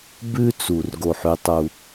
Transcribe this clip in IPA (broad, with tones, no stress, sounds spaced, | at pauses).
b ʉ˦ t͡s u˨ r ɡ o˦˨ ħ ʉ˦ tˤ u˦